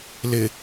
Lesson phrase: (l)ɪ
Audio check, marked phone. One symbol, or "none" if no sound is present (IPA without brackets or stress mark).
l